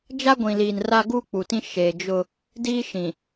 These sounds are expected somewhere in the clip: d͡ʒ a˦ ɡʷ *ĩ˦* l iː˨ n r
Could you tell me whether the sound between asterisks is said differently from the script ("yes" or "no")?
yes